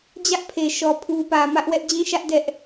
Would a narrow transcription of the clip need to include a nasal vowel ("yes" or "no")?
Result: yes